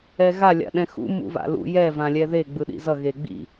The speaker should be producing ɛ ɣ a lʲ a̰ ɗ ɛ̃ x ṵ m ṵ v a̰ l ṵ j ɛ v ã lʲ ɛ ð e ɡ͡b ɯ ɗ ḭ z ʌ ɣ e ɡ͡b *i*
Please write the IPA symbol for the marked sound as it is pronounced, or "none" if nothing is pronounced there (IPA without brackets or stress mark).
ḭ